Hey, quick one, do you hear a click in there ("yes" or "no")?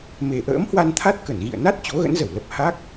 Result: no